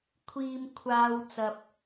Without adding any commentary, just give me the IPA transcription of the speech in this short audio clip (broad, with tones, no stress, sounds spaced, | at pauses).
kʷʰ iː˨ m kʷʰ aː˨ w t͡s ɐ˨ p̚